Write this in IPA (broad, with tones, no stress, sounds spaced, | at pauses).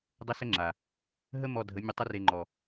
dˤ ə˦ s ə˦ ŋ͡ǁ a˨ | ɦ ə˦ m ɔ˧ dʱ ə˨˦ mʲ ə˧ tˤ ə˦ r e˧ ŋ͡ǃ ɔ˨